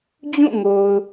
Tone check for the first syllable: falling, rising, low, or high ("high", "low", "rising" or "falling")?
falling